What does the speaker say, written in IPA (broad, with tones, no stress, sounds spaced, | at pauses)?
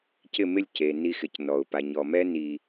c ɪ˦˨ m ɪ˦˨ lʲ c e˨ n i˧ x ɪ˨ c n ɔ˨ ʊ̯ p a˨ ɲ ɔ˨ m ɛ˦ n i˧